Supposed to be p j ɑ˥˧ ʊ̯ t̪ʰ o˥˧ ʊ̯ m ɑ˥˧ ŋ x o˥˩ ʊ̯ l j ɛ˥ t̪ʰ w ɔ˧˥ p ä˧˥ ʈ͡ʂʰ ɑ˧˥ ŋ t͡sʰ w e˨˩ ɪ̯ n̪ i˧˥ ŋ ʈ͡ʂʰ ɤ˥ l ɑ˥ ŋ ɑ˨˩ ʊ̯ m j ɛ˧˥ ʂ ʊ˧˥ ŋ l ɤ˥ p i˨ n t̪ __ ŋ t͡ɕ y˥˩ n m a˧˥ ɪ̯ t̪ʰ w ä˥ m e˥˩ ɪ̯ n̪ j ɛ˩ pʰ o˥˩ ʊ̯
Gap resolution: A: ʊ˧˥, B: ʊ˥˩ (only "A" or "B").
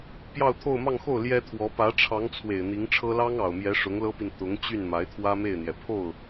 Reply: A